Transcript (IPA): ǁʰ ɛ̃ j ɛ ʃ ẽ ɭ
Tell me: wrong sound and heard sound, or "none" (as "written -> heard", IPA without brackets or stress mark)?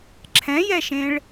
none